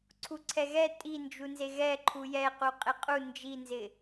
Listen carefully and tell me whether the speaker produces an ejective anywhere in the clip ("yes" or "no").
yes